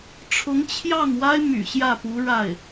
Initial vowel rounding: rounded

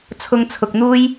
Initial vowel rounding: rounded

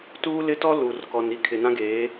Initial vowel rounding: rounded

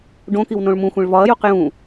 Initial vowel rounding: rounded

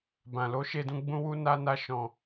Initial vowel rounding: unrounded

